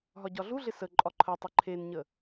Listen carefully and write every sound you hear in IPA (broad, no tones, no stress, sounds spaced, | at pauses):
ɦ ɒ ɟ ɒ ɮ u ɮ ɪ s ə ǃʼ ɒ ǃʰ ə tˤ ə ǃʰ e n ɲ ə